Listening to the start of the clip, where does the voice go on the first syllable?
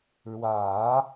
low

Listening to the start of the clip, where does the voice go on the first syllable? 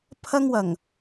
high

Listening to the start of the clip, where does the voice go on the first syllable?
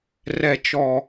low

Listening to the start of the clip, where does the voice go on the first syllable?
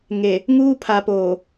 low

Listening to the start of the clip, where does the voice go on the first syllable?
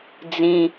high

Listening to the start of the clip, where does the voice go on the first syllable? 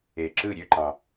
low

